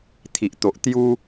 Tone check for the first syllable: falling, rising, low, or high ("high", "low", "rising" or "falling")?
low